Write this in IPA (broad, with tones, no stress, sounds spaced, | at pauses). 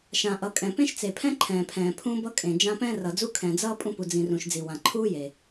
ʃ ã˨ ʔ ʌ˨ kʼ ɛ̃˨ p ẽ˦ ʃ t͡s e˨ pʰ ɛ̃˦ ǃʰ ɛ̃ː˨ pʰ ɛ̃ː˨ pʰ ũ˦ b ʌ˦ kʼ ẽ˨ d͡ʒ ã˦ p ɛ̃ː˦ r ʌ˨ d͡z u˦ kʰ ɛ̃˨ d͡z ʌː˦ pʼ ũ˦ p u˨ d͡z ĩ˨ r ũ˨ ʃ d͡z i˨ w ã˨ ǃʰ uː˦ j e˨